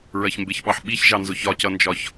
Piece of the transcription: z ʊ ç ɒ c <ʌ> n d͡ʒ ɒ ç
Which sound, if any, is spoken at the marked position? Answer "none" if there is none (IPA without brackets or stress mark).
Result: ʌ